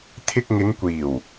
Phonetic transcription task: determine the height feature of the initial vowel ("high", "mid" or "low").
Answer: high